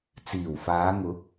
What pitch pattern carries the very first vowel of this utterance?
low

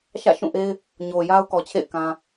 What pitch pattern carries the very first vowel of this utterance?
falling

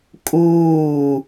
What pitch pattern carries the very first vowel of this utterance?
falling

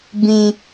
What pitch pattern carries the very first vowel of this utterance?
high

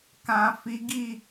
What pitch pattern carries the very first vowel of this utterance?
low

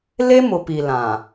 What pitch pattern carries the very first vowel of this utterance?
high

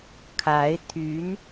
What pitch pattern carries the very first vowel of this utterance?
rising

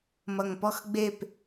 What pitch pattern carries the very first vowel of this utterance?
low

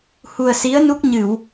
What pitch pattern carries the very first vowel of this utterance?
low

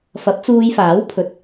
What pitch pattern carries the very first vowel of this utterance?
rising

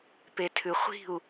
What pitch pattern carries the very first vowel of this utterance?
low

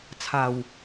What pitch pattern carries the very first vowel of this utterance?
low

